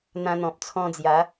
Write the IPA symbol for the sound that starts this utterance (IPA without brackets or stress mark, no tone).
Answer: n̪